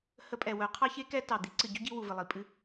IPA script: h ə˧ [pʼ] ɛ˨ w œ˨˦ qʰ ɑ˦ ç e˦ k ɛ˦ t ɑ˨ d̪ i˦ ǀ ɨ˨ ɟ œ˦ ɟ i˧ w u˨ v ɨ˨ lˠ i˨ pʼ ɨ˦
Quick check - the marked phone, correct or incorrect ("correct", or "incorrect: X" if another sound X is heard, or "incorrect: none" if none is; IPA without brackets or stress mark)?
correct